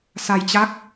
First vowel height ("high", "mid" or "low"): low